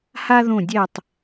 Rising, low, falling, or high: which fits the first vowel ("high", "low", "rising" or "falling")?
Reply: high